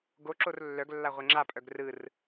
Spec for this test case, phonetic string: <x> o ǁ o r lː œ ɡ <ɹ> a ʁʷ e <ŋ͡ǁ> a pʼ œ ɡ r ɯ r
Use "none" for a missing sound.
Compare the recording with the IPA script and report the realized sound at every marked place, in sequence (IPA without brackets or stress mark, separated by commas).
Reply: ɡ, lː, ŋ͡ǁ